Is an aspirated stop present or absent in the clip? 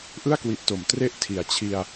present